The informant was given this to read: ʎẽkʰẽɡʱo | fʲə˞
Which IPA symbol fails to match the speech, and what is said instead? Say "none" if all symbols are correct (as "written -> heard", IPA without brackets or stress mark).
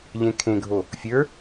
none